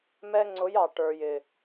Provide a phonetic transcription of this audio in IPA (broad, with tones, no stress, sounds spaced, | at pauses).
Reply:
m ɛ˧ ŋ͡ǀ ʊ˨˦ j ɑ˨ ʈ ə˞˨ j ɪ˨